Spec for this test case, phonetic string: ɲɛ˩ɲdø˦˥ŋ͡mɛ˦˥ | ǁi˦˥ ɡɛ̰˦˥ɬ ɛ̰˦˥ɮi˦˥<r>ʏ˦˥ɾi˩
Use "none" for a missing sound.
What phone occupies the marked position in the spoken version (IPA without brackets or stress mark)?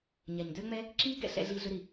ɮ